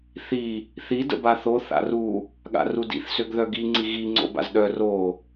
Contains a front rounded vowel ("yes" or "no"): yes